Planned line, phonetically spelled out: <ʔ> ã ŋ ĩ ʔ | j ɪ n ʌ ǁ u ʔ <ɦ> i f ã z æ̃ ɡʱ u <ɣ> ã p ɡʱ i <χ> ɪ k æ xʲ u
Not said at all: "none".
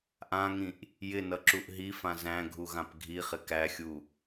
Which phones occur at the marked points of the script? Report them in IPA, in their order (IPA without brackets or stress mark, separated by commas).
ʔ, ɦ, ɣ, χ